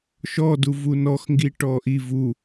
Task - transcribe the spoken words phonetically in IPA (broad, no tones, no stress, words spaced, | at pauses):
ʃɔdu vunɔx ŋɡiʈɔʔi vu